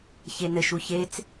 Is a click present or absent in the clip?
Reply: absent